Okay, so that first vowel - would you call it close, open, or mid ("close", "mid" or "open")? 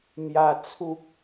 open